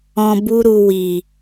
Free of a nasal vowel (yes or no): no